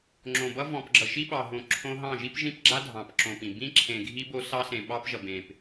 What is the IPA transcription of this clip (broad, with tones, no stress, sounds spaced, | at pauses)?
ŋ͡ǁ õ˨ b ʌ˦ v ɔ̃˨ p ɡ͡ǁ ʌ˨ ʃ i˦ ɓ ɑ˨ ɦ õ˨ ǁʰ õ˦ ɦ ɑ̃˦˨ ʒ i˦ p ʒ ĩ˦ p ɡ͡ǁ a˦ dʱ ɑ̃˨ p ǁ õ˨ p ĩ˨ b ĩ˦ ǁʰ ẽ˨ ɡʱ i˦ b o˦ s ɑ˦ s ẽ˨ ɓ ɑ˦ p ʒ ʌ˨ b ẽ˨ p